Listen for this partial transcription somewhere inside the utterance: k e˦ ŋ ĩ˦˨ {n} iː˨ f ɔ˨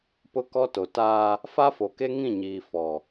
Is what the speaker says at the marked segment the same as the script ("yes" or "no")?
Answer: no